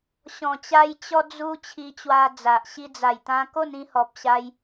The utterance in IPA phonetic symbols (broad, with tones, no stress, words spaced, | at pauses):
ɕɔ̃˨˩t͡ɕa˧j t͡ɕɔ˧d͡zu˧ t͡ɕʰi˧t͡ɕwa˧d͡za˨ʔ ɕi˧d͡za˨˩jt̪ã˧ ko˥˧nĩ˧hɔ˨p̚ɕa˧j